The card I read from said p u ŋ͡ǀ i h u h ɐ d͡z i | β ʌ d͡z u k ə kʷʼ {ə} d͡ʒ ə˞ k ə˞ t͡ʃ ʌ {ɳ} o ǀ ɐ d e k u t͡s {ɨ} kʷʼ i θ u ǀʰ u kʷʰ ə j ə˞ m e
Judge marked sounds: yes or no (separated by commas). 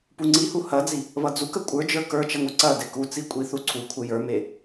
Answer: no, no, no